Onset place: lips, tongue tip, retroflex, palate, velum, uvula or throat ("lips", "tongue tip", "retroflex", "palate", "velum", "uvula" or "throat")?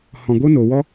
throat